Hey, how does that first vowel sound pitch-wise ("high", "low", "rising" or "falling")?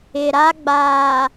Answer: low